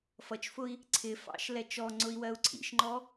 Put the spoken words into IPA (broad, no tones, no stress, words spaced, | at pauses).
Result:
fʌt͡ʃfʊi̯ | ǀʰɪfɑ̰ʃ lɛt͡ʃɔŋ͡ǀʊi̯ wɜu̯ǀʰḭʃŋ͡ǃɔ